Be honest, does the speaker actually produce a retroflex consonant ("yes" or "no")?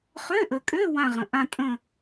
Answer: no